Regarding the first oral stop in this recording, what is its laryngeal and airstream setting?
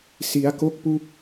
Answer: plain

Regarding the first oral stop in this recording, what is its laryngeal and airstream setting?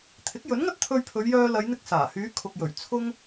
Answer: aspirated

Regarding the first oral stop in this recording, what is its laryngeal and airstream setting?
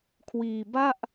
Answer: aspirated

